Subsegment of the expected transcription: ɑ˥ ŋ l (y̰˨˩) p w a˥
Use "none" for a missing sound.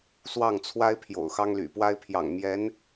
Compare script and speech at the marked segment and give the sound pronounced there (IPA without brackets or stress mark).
y̰˨˩